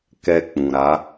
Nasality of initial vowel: oral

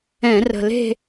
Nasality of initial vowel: nasal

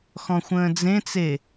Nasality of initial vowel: nasal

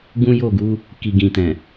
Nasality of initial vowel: nasal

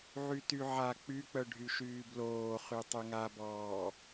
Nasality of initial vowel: oral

